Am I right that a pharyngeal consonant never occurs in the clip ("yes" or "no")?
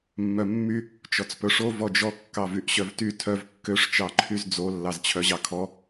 yes